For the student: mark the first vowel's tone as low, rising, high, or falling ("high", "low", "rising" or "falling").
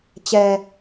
low